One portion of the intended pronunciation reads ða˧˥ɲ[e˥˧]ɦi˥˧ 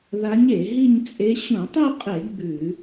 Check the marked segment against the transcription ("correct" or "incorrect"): incorrect